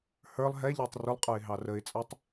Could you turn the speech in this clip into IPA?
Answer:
hə˞lˠ ɦɛʎə˞tˤ rʊlˠqʼə˞ɪ̯ɦɑ rəɪ̯t͡sʼə˞tˤ

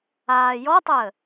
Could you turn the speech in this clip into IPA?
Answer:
aːjɔtˤəː

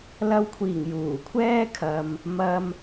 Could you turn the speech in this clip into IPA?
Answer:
lɐ˧wkʷʰiː˨˩ŋ juː˨˩kʷʰɛː˥kʰɐ˨m | mɐ˧m

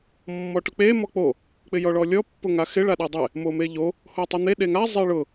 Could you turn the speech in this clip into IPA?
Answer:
mːɔʈʊk͡pe mɔk͡po | k͡pɪjɔɭɔlʲɔ pːʊŋaxɪ ɭaɗedˤe | momeʎo | hotˤɪn̪e ɗeŋa zˤeɭʊ

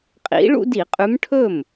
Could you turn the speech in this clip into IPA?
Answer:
qʼḭ˨˦ ɭṵ˦di˧˩˧qʼʉ˨˦m ʈʰɵ˥˩m

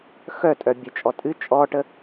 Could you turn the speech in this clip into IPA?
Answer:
xœtʼœ bʲət͡ʃʼɔ tʼɨ t͡ʃʼɔʈə

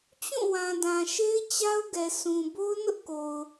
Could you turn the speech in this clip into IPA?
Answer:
t͡ɕũ˦˨wã˨dã˨ ʃe˦ɪ̯t͡ɕa˦ʊ̯ɡɛ˨ sũ˨ bo˦ʊ̯nʊ˦ʔ ko˨ʊ̯

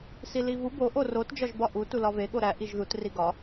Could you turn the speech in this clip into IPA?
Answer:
silivu bo ʔorot d͡ʒɒʒbɒʔu tulɒve ɠoɾæ ʔiʒðut riɡɒ

